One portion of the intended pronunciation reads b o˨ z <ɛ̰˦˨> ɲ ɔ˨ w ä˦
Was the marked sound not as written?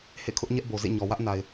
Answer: yes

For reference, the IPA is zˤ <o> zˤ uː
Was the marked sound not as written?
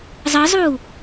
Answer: yes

